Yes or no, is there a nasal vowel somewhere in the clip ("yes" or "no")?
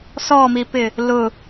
no